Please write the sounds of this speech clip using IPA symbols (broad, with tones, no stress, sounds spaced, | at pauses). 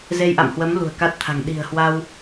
z e˧ j ʔ a̰˧˨ m h w ə˨˦ m l ṳ˨˩ ə̯ k a˦˥ t̚ t̪ʰ a̤˨˩ ŋ ɗ i̤˨˩ ə̯ h w a˧ w